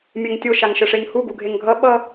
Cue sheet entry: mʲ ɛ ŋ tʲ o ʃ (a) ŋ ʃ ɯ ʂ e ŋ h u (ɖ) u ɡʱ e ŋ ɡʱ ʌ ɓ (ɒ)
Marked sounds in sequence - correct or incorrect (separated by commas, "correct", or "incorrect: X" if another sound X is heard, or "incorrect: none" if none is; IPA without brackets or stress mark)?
correct, incorrect: ɡ, incorrect: ʌ